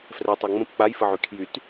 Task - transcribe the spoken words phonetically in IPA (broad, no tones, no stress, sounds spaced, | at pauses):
f r ɛ tˤ a ŋ͡m ə̃ p k͡p a j f ə ʕ y kʰ j y t